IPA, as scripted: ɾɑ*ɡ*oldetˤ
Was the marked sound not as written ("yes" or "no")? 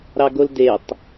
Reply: no